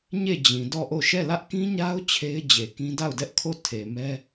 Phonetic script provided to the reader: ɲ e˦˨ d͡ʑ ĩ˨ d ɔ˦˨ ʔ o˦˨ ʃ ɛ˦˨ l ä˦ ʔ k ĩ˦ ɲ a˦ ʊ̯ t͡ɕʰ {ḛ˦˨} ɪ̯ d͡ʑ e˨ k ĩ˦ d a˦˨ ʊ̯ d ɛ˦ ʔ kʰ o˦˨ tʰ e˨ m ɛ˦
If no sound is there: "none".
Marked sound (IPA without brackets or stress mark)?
e˦